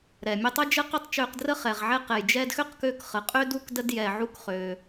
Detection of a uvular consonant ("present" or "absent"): present